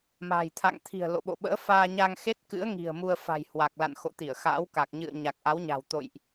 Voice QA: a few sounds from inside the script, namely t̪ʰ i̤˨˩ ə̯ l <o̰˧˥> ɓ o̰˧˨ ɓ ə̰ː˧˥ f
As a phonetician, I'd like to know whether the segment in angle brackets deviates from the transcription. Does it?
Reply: yes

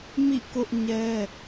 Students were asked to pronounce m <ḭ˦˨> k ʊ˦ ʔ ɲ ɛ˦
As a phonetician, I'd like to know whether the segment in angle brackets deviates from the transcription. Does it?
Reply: no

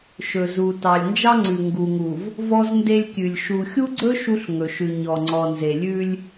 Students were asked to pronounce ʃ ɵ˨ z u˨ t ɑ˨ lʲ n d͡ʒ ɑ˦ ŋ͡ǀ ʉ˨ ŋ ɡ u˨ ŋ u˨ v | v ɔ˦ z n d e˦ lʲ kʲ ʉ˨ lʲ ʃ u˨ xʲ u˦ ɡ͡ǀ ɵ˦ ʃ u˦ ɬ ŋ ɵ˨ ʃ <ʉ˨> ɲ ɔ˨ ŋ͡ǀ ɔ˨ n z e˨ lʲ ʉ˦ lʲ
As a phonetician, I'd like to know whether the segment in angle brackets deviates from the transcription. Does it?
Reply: no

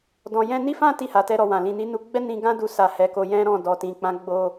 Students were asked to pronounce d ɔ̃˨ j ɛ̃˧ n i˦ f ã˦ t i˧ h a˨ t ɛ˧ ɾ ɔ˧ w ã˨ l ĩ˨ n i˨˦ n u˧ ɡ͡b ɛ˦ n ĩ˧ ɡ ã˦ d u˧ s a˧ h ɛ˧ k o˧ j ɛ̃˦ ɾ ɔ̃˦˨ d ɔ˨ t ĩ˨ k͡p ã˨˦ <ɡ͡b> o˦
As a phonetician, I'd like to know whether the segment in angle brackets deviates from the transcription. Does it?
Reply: no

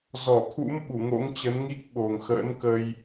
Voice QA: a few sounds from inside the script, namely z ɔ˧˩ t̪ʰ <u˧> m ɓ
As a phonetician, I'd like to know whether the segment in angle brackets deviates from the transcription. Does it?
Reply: yes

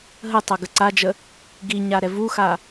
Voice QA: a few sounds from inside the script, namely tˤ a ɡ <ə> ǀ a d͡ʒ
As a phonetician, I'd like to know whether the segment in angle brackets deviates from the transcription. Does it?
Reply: no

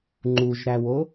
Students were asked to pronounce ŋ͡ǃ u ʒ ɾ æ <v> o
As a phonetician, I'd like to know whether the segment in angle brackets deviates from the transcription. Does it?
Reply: yes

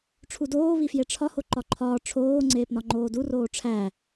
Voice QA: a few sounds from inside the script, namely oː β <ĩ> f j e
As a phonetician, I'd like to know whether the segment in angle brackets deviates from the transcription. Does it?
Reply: yes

